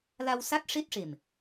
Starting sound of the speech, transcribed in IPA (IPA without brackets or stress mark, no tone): l